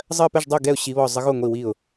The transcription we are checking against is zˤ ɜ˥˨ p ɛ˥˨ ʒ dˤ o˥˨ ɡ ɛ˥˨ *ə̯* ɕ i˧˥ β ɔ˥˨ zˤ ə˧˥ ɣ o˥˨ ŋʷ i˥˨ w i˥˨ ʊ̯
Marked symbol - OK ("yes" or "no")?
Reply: no